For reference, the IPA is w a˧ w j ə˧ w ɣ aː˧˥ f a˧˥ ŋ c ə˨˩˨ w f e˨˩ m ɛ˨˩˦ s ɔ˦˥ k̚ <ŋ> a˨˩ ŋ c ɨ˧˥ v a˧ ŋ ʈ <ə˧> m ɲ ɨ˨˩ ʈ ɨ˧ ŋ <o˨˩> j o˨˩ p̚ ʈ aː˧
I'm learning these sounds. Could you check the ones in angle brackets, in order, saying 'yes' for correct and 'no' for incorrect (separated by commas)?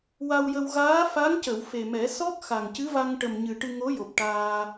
no, no, no